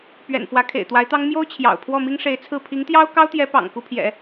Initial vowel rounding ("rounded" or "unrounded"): unrounded